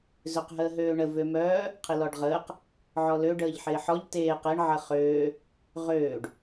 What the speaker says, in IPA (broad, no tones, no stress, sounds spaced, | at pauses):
z ø q ɦ əː ɦ øː ɳ ə v ø m œː | qʰ ɪ l ɔ ɖ ʁ əː q | ʕ ɔ l ø ɖ əː ʎ ħ ɪː ħ ɔ ʎ t eː q e ɳ ʕ ə χ øː | ʁ øː ɖ